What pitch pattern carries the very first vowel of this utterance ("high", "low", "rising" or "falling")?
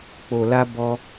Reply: low